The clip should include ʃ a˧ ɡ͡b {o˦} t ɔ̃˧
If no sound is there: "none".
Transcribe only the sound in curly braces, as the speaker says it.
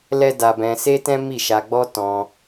ɔ˦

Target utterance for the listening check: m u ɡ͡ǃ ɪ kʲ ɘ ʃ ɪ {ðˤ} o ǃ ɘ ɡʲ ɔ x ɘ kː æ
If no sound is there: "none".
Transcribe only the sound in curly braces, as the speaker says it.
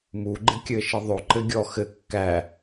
ðˤ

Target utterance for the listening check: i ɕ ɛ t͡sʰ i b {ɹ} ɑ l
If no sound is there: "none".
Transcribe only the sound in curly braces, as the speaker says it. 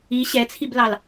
l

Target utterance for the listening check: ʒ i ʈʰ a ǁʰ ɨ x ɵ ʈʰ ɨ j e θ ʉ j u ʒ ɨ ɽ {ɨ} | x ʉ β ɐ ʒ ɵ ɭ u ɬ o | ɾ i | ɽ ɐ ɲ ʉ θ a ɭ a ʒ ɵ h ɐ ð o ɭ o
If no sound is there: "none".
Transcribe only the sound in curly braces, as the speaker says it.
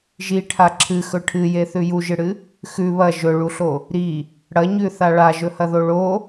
ɨ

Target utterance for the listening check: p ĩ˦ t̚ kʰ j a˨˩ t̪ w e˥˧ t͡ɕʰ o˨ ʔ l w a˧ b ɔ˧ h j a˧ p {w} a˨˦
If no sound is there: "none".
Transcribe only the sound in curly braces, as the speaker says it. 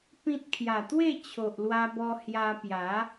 j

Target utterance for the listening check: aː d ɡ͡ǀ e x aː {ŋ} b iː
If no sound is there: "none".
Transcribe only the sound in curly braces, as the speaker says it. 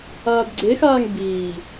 ŋ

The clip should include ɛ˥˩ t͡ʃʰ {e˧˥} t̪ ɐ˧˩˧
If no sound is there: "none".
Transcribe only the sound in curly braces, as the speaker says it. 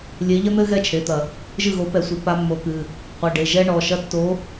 e˩˧˩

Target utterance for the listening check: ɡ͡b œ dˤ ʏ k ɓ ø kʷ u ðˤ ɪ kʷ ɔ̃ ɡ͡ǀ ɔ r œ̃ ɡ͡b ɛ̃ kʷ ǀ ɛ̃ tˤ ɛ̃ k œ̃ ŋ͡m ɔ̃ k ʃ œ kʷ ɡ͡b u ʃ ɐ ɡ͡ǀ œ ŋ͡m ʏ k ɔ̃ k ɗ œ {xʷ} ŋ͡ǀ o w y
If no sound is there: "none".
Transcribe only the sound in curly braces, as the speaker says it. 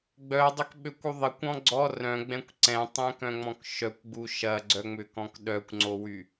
kʷ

